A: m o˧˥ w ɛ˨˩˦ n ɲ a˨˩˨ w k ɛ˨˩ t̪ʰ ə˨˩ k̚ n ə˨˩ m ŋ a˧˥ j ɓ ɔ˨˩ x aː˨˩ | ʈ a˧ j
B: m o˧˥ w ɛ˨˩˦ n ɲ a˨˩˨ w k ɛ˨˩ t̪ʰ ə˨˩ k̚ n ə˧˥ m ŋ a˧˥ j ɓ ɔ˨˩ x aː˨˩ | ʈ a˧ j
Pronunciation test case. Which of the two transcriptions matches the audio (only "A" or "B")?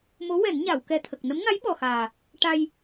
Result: B